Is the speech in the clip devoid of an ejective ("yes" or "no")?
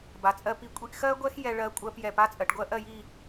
no